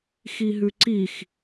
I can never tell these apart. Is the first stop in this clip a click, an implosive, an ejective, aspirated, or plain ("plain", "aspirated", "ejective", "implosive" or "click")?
click